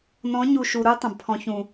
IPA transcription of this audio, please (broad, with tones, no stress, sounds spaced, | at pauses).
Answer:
n ɔ̃˨˦ ɲ u˨ ʃ u˨ ɾ u˦ tˤ ə̃˨ b pʰ ɔ̃˦ ç ũ˦˨